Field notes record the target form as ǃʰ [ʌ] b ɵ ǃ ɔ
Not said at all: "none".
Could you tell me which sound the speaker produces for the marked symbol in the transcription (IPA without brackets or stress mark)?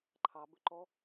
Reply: ɑ